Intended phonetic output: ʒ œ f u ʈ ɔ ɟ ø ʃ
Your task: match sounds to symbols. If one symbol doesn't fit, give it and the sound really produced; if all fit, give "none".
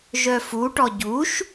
ø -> u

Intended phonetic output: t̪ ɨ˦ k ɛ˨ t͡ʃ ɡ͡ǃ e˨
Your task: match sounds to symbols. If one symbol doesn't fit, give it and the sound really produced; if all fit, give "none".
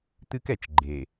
none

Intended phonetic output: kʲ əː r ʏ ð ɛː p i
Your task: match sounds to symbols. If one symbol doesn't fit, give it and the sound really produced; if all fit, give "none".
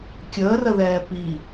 ʏ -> ə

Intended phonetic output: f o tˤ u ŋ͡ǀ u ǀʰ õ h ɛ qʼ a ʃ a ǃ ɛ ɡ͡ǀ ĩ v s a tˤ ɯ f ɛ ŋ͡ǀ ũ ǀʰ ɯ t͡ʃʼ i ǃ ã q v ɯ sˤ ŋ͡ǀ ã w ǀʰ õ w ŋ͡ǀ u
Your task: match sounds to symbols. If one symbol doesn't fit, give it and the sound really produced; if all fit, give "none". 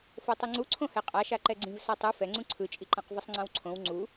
none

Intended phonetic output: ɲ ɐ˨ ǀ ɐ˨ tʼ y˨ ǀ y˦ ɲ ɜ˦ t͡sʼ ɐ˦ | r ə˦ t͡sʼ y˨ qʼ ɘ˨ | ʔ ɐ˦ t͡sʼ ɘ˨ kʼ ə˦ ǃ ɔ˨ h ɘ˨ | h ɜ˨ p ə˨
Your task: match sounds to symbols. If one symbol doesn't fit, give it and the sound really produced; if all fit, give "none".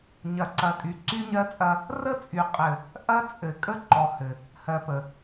none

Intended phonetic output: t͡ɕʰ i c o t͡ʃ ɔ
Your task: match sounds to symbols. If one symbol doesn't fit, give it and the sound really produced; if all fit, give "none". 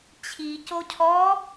t͡ʃ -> cʰ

